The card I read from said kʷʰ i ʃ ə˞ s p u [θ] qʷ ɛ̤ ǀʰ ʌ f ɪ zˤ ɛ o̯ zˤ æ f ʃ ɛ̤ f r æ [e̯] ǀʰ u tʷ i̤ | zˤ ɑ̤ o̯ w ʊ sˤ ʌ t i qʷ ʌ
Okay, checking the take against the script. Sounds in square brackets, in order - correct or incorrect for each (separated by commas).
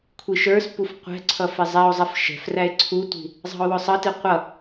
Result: incorrect, correct